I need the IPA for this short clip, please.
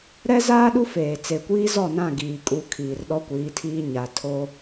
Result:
ɾ ɛ˦ z aː˦ ɗ u˦ f eː˨ t͡s e˨ kʷ iː˦ z ɔ˦˨ n ã˦˨ ɡ iː˨ kʼ u˨˦ kʰ iː˨ r ɗ ɔ˦ kʷ iː˨˦ tʰ iː˦ ɲ a˨ tʰ o˦

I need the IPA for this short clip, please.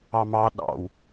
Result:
ɑ m ɑ ɗ ɑ̰ w

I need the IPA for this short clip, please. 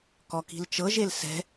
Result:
k ɔ k i̤ l t͡ʃ ɤ ʒ e l s ɛ̤

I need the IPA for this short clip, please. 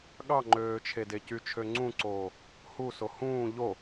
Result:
ɠ ɑ ŋ͡ǃ øː t͡ʃʰ e d e c y t͡ʃʰ ø ŋ͡ǀ ũ ǀ oː | h u s o h ũː ʎ o

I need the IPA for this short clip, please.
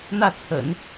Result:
n̪ ä˥˩ t͡sʰ ə̰˨˩˦ n

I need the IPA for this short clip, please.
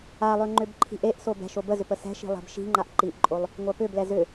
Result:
a lˠ ø ŋ͡ǃ ʏ b ǃʰ i̤ ʔ e ʔ s o b ɛ̤ ʃ o b ə z ʏ p ə s ɛ̤ ʃ i̤ lˠ ɛ̤ b ʃ i̤ ŋ͡ǃ a ʔ ǃ i ʔ ǃʼ o lˠ | ŋʷ a p ʏ b l ɛ z ʏ

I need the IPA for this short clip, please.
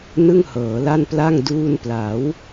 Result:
n ɯ˥˩ ŋ h ɤː˩˦ l a˥˩ n p l a˥˩ ŋ d uː˧ n p l a˩˦ w

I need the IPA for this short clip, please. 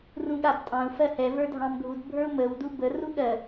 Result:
r ũ ɠ a b tʼ ɑ̃ u̯ f ɜ h ɛ v ə˞ dʱ ɑ̃ m ɡʱ u d bʱ ə˞ u̯ m ə w d u b ə r u ɠ ɜ

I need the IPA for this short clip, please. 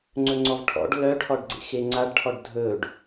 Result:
ŋ͡ǀ ɵ ŋ͡ǀ ɔ v ʈʰ ɔ̰ ɖ l œ ʈʰ ɔ ɖ ɡ͡ǀ ḛ x e ŋ͡ǀ a ɖ ʈʰ ɔ ɖ dʱ ɵ ɖ

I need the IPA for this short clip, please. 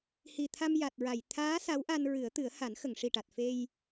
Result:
h i˨˩ t̪ʰ a˧ m j a˨˩ t̚ ɹ a˨˩˨ j t̪ʰ aː˧˥ s a˧˥ w ʔ a˧ n ɹ ɨ˨˩˦ ə̯ t̪ ɨ˨˩˦ ə̯ h a˨˩˦ n x ə˨˩˨ ŋ ʂ i˨˩ ʈ a˨˩ t̚ f e˧ j

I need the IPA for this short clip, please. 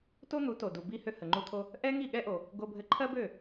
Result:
t o˥ n̪ u˩˥ t o˩ d u˩ b i˧ h ø˧ h ə˩ ŋ͡ǃ u˧ t̪ʰ o˧ | ʔ ɛ˥ ŋ i˥˩ ɠ ɛ˥ ʔ o˩ | ɡ o˧ bʱ ɘ˧ ǃʰ ɜ˥ b ø˥˩

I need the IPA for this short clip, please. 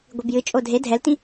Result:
ɡʷ i b j ɨ t͡ʃʼ o dʱ e dʱ ɛ l t ĩ

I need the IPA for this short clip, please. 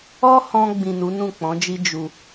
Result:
ɔ˦ h ɔ̃˧ ɡ͡b ĩ˨ n u˨˦ n ũ˦˨ k͡p ɔ̃˨˦ d͡ʒ i˦ d͡ʒ u˧

